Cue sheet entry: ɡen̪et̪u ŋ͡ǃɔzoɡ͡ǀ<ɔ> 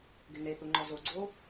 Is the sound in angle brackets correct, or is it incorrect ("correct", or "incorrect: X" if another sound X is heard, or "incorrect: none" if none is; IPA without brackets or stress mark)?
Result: incorrect: o